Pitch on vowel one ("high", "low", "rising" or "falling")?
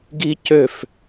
high